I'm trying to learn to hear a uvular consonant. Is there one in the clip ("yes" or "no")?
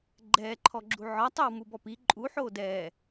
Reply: no